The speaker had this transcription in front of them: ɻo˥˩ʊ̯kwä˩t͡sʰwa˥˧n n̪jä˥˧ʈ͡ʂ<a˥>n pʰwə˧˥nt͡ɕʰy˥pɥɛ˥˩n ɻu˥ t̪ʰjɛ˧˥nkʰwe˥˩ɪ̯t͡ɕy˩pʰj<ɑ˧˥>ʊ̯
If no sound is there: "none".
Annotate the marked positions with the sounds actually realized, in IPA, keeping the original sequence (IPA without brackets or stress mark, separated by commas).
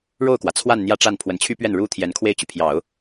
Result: a˥˩, ɑ˨˩˦